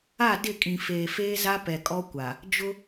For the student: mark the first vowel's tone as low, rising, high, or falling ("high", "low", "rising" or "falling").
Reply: falling